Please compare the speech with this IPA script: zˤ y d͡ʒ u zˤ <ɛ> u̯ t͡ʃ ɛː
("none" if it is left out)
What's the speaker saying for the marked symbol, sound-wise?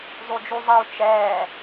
ɛ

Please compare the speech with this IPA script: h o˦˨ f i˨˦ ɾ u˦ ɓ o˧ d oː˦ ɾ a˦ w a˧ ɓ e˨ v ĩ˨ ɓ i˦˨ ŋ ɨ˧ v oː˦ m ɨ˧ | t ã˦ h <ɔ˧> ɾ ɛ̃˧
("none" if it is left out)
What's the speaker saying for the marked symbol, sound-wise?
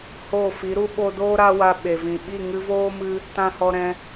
ɔ˧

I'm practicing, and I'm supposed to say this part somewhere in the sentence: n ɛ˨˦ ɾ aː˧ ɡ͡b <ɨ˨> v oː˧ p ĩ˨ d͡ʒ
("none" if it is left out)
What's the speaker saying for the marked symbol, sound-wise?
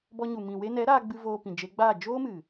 ɨ˧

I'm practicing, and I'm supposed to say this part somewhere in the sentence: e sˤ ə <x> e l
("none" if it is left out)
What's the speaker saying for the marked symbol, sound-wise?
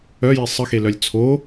x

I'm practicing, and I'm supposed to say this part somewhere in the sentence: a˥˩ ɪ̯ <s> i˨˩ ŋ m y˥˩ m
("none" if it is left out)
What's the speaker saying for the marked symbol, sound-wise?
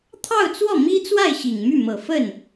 ɕ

